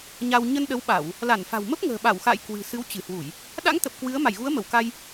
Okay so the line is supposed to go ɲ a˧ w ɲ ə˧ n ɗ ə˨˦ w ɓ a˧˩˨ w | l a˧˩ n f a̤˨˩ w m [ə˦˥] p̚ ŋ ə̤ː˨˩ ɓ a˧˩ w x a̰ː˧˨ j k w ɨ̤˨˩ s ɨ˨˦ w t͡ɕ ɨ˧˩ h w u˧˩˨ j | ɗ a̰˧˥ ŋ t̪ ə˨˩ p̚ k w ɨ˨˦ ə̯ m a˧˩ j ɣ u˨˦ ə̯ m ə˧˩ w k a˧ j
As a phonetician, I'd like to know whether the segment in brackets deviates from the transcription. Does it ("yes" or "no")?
no